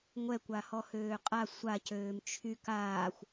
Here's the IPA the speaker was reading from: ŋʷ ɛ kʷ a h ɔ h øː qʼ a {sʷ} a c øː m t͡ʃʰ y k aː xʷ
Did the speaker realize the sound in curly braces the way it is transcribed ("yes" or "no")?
yes